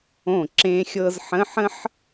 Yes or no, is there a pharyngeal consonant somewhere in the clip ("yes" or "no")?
yes